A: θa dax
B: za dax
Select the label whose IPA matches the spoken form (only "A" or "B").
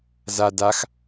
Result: B